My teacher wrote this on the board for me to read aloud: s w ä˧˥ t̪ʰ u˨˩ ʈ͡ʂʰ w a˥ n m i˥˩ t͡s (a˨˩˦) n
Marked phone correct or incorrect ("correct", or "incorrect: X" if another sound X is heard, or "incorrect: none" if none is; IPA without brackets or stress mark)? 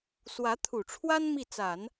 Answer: correct